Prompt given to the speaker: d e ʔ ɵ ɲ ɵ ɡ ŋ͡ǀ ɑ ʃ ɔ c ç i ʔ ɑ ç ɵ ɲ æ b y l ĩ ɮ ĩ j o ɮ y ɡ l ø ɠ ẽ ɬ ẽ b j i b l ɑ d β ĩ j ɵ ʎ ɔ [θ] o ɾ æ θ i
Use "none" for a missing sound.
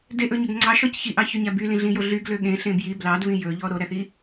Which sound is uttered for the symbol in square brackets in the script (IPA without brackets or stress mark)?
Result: ɾ